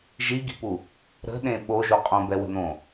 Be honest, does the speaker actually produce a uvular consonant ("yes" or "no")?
yes